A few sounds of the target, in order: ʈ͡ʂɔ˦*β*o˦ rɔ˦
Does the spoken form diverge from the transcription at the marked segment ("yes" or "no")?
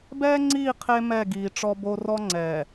yes